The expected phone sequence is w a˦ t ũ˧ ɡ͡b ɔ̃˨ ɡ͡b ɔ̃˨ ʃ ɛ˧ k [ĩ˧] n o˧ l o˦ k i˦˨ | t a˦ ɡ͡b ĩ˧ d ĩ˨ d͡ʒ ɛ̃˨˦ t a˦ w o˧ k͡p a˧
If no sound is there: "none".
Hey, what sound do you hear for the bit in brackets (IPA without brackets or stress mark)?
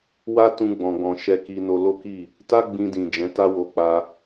i˧